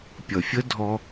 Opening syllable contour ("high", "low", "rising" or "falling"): low